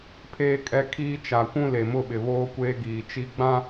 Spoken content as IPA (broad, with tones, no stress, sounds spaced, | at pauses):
pʰ eː˦ kʼ ɛ˦ kʰ iː˦ t͡ʃ a˨ kʷ ũ˦ l e˨ m ʊ˦˨ ɓ ɪ˨ β oː˦ kʷ eː˦ ɡ iː˨ t͡ʃ i˦ ɡ͡b ã˦